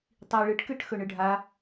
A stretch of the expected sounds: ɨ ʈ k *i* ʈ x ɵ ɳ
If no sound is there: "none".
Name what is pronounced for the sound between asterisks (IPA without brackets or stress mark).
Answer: ɨ